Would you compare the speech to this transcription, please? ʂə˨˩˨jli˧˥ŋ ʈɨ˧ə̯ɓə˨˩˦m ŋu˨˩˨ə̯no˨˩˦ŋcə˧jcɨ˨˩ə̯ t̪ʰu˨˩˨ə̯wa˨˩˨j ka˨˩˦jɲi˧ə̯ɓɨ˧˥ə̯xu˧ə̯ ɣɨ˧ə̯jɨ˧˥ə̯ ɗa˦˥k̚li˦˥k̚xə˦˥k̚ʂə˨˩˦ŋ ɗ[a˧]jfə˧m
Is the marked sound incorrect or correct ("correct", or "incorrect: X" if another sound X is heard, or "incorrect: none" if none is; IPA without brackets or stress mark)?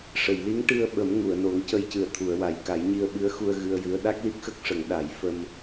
incorrect: a˨˩˦